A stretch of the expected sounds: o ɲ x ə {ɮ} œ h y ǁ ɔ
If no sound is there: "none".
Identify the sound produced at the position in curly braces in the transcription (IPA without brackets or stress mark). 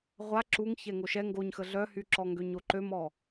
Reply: ɮ